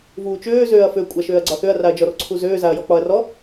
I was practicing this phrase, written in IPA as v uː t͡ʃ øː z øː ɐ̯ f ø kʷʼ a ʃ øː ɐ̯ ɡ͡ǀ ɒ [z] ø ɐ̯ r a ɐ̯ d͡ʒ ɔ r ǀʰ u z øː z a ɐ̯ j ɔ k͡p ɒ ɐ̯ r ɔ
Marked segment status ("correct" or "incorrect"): incorrect